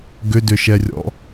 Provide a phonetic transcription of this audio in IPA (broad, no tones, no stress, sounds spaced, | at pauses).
ɡ ʏ d ʏ ʃ ɛ rʲ ɔ̰